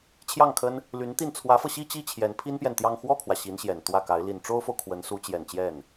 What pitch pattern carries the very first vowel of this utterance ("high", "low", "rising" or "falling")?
falling